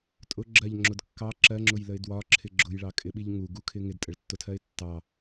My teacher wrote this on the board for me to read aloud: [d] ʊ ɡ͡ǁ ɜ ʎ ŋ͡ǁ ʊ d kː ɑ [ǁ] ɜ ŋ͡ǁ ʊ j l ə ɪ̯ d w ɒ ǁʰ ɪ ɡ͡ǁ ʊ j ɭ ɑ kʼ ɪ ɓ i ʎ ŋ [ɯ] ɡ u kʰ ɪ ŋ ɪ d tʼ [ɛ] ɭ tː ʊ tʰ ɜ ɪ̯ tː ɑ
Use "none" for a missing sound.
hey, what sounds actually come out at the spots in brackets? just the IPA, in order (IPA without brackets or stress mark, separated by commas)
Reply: tʼ, ǁ, u, ə